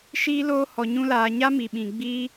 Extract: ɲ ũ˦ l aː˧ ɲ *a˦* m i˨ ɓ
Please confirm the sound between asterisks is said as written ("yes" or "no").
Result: yes